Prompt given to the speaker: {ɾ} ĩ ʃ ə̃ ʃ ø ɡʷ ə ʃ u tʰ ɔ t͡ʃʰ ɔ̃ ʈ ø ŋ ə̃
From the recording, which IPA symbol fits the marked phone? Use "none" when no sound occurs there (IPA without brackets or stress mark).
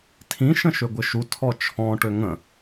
tʰ